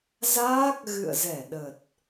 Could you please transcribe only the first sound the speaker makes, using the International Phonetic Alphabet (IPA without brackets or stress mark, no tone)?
z